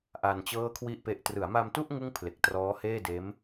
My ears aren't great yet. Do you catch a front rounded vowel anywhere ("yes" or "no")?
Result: no